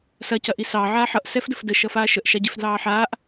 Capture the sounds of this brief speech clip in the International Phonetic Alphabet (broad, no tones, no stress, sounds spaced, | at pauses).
s ɐ c ɐ ʔ i s ɑː ʕ aː ħ ʌ ʔ s ɛ f d ə f d ə ʃ ʌ f aː ʃ ə ʔ ʃ a ɟ e f d l ɑː ħ aː ʔ